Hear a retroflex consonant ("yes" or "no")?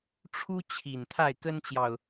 yes